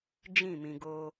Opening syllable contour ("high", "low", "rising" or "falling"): falling